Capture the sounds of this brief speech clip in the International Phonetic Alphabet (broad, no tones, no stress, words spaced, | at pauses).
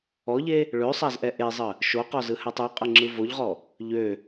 ɔʎe | ɭøsˤazʔɛ ʔezˤə | ʃoqɔzɯhætˤ øqʼəŋ͡ǁɯ voʎʁɔ | ʎø